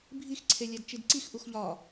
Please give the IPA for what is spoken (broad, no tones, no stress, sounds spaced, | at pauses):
bʱ i x ǀʰ e lʲ æ d t͡ʃ i d ǀ i x ʔ u x ʎ ɒ